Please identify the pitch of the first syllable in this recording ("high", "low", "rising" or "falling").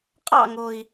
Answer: falling